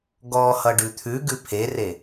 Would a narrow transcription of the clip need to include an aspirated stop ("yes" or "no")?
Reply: yes